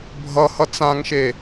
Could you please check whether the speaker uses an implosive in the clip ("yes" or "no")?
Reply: no